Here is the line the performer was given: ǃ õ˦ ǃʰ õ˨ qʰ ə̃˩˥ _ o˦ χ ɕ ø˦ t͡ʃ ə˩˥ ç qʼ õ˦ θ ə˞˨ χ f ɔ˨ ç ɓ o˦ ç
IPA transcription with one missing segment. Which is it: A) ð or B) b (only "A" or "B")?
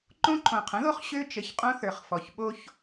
A